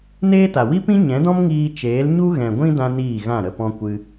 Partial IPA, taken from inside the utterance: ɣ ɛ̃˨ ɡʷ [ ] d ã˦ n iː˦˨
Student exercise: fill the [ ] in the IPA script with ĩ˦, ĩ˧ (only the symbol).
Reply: ĩ˦